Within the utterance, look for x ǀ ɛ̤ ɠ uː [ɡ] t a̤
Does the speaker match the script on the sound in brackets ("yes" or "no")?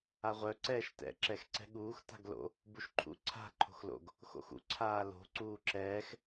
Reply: no